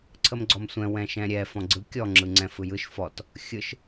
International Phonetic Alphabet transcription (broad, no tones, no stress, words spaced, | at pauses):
ǀʰəmɡ͡ǀɔmsʷɛ̃ wɛ̃ʃɛ̃ɾʲɛ fɔ̃ɡ͡ǀɯ kʲɔ ŋ͡ǁɯŋ͡ǀɛ̃fɯjɯʃ fɔt | xʲɯʃ